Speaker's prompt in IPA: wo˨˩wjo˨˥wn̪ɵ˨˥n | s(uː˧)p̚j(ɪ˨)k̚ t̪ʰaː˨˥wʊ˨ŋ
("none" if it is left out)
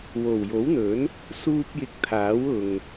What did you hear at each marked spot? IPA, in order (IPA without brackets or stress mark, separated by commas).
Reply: uː˧, ɪ˨